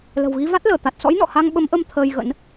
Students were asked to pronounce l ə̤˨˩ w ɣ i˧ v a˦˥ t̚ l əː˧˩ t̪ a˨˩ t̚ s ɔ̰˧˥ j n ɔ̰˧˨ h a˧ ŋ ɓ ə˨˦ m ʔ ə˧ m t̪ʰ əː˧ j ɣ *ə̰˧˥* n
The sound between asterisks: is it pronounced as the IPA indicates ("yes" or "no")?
yes